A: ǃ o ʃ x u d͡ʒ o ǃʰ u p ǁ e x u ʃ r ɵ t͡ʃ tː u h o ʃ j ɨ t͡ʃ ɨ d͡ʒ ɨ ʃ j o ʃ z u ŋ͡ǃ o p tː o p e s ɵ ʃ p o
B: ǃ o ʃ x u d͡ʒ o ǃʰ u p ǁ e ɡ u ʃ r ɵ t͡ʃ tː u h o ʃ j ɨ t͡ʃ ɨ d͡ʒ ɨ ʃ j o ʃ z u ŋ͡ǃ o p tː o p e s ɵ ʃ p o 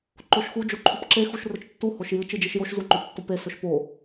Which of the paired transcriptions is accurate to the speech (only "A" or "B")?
A